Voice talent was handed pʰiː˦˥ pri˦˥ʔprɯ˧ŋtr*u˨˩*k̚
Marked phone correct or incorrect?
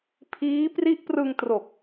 incorrect